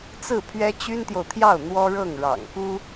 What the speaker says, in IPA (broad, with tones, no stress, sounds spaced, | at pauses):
t͡s ɹ̩˥˩ pʰ ɥ ɛ˥ t͡ɕ y˥ n t̪ j o˨ ʊ̯ t̪ʰ j ɑ˥˩ ʊ̯ n̪ w ɔ˥ ɻ ɤ˥˩ ŋ ɻ ɑ̰˨˩ ŋ k u˥